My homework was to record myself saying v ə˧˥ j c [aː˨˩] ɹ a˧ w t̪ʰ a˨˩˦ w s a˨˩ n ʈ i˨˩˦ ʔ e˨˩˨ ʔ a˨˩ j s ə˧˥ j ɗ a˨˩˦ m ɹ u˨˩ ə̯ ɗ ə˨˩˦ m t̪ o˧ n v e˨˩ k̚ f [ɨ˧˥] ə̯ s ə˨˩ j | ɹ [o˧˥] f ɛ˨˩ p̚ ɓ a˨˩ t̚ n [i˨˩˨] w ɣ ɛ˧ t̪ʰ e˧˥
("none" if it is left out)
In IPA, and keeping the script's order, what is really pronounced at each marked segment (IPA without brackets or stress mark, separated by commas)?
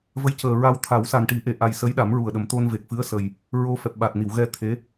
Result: əː˨˩, ɨ˧˥, o˧, i˨˩˨